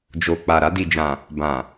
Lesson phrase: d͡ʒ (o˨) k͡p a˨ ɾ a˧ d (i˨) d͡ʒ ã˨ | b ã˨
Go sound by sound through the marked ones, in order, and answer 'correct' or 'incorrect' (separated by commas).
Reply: correct, correct